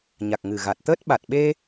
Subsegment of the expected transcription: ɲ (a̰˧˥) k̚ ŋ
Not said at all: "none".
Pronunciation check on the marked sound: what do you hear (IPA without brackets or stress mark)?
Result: a˨˩